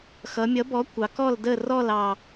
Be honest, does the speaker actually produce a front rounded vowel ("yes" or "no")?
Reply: no